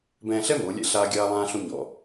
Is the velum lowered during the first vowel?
yes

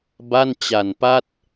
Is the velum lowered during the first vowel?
no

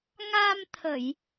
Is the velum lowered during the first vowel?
no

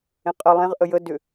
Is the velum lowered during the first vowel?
yes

